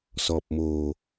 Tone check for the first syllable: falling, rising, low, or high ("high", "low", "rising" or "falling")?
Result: low